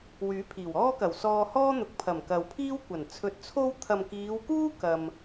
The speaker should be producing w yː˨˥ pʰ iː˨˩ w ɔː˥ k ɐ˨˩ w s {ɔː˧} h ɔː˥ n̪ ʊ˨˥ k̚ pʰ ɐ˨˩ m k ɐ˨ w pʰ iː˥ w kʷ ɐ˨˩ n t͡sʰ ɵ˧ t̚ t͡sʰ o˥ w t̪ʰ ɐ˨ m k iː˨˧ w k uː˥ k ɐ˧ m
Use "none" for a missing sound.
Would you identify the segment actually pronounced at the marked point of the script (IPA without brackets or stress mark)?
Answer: ɔː˧